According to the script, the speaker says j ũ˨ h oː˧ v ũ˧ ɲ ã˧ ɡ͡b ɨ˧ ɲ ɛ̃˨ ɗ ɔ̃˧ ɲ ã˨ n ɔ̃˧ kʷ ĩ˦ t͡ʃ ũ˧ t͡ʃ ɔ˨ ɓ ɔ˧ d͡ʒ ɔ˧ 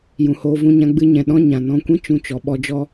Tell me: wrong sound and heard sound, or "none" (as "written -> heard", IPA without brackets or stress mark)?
none